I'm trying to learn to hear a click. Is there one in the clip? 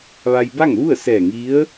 no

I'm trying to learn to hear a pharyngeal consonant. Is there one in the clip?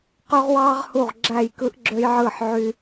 yes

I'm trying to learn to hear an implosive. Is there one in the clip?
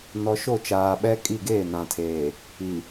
yes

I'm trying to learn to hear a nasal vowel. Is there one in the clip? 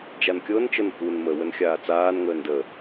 no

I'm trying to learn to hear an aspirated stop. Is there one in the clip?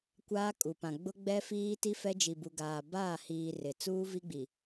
no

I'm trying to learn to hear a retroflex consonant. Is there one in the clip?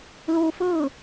no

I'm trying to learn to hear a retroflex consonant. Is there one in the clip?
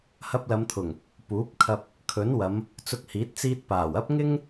no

